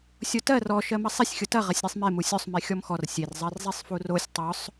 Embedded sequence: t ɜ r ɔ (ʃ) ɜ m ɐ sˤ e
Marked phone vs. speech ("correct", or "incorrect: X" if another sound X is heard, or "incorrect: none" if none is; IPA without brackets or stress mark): correct